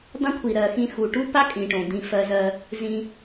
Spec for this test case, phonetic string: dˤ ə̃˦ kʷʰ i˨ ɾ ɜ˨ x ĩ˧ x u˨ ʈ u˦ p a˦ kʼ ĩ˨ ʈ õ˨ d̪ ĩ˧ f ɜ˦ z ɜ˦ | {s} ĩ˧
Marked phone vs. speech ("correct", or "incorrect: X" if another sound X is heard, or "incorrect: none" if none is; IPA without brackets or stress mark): incorrect: z